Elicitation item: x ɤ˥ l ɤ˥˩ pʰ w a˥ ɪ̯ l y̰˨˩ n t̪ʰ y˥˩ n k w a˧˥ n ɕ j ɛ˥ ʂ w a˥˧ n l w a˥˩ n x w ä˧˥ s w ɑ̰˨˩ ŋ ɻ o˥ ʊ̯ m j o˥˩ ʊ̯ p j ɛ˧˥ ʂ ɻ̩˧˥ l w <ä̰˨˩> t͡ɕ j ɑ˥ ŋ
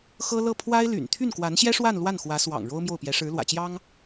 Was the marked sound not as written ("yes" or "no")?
no